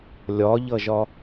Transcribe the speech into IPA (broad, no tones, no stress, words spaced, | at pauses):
lʲɒʎʌʒɒ